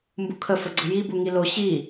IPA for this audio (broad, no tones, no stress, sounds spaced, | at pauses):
m b u kʰ ə f ə ɡ͡ǀ ə j i b u ŋ i l o ɕ i